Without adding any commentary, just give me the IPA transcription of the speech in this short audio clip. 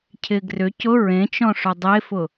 cʰ ɪ ɡ r ʏ c ʊ ɹ ẽ t͡ʃ ɔ̃ ʂ ʊ dˤ e f ʊ

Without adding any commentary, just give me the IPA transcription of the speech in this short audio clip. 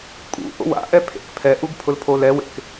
kʼ ṵ ʔ o̰ w a̰ ʔ ɛ pʰ ḛ k pʰ ɛ ʔ u ɡ pʰ ʊ l pʰ o l ɛ w ḛ k

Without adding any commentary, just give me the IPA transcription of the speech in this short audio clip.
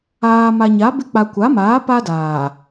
aː˨ m a˨ ɲ a˨˦ b ɪ˦ k͡p a˨ kʷ a˨˦ m aː˨˦ p a˦ d aː˨

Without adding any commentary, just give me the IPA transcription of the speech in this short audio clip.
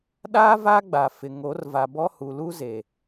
ɗ aː˦ v a˦ ɡ͡b a˨ f ɪ˨ ŋ o˨˦ r v a˨ b ɔ˦ h u˨ l u˦ z e˨

